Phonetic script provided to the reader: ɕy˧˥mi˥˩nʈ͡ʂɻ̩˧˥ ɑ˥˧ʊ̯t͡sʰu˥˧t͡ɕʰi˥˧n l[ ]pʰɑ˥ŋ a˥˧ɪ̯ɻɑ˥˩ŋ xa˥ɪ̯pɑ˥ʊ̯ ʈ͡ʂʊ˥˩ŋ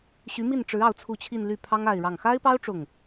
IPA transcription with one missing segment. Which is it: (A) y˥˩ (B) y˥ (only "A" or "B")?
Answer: A